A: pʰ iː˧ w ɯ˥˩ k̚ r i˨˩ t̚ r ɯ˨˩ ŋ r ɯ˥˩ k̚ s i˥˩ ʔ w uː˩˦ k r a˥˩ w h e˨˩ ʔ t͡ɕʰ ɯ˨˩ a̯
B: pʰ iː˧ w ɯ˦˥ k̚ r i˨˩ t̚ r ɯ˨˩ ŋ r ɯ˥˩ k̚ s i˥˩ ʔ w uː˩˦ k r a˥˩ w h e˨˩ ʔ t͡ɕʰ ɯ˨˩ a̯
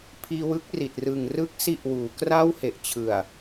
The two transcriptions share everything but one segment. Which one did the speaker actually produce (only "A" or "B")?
B